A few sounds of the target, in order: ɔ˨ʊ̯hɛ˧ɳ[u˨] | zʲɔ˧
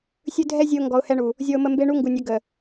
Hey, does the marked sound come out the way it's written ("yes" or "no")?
yes